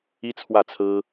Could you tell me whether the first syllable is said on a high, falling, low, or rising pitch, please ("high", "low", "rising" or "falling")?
high